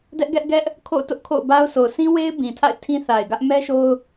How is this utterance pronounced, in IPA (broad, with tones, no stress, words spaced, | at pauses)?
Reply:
dɛ˦ʔɡɛ˦ʔɡɛ˦ʔ | kʰo̰˦˨ʊ̯tʊ˦ʔ kʰo̰˦˨ʊ̯ba˦ʊ̯so˨ʊ̯ sʰĩ˦we˦ɪ̯ bĩ˨tʰa̰˦˨ɪ̯ tʰĩ˦θa˨ɪ̯ɡä˦ʔ mɛ˦ ʃo˦ʊ̯